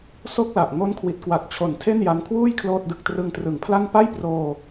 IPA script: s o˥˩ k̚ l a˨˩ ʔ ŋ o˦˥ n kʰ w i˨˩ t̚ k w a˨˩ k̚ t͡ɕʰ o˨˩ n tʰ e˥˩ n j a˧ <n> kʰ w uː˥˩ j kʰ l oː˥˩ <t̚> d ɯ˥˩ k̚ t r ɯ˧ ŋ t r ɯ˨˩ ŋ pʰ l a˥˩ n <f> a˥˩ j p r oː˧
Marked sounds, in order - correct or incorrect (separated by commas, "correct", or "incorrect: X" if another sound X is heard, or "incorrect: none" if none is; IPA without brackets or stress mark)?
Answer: correct, correct, incorrect: p